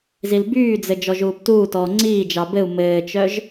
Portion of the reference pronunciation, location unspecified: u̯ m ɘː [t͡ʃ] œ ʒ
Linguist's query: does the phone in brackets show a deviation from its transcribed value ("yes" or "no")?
no